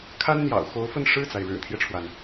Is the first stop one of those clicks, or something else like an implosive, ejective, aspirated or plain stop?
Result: aspirated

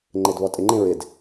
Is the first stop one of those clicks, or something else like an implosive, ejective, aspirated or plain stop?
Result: click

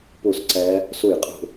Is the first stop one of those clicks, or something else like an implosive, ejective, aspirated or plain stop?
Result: plain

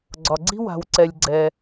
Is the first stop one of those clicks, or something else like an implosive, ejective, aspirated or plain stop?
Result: click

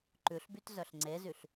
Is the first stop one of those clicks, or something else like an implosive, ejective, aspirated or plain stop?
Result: click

